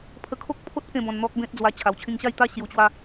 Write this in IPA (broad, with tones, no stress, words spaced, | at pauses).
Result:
pʰə˧kʰo˦k̚pʰo˦t̚ kẽ˥˧bɔ̃˧nn̪ɔ˦k̚bẽ˦t̚ d͡zwa˧ t͡ɕʰa˨˩wt͡ɕʰĩ˧ŋɕa˥˧jt̪a˦ ɕju˧t͡ɕwa˦